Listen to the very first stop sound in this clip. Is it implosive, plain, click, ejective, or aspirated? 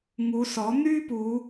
plain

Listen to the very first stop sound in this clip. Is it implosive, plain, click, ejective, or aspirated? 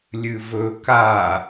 plain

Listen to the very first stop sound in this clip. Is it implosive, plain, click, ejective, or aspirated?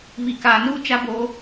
plain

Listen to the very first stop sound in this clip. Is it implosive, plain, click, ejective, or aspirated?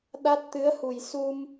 implosive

